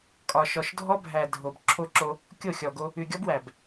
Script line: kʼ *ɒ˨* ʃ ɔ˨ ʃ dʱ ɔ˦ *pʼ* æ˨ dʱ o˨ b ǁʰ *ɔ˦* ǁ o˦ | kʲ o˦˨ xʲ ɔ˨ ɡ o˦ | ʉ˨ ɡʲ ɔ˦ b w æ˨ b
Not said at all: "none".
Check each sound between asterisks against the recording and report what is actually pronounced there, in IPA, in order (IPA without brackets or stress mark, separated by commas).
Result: ɒ˨, bʱ, o˦